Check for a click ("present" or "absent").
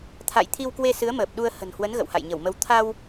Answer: absent